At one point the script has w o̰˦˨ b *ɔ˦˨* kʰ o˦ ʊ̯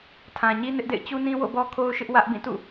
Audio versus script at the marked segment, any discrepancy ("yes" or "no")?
yes